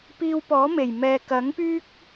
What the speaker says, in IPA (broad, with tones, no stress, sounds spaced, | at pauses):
p iː˧ w p ɔː˨˥ m e˨˩ j m ɛː˨ k ɐ˨˥ ŋ p yː˥ k̚